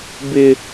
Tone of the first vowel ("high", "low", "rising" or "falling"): high